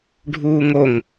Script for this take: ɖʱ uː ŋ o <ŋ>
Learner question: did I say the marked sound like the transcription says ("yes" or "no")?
yes